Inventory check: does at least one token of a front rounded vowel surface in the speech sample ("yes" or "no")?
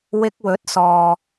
no